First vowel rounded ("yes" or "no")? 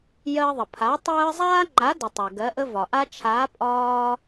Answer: no